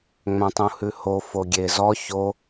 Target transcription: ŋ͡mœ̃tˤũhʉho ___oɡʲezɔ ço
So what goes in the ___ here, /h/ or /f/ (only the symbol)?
f